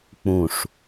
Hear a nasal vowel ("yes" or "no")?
yes